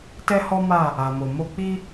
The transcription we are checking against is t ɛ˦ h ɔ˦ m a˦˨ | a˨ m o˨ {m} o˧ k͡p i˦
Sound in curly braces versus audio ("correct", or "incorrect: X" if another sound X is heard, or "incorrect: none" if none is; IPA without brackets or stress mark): correct